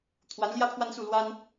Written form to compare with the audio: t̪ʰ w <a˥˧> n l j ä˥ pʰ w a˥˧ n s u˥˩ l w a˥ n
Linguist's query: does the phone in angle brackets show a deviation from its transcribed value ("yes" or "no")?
yes